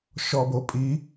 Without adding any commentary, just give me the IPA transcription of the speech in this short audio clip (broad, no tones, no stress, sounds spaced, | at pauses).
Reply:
ʃ ɔ b o pʼ i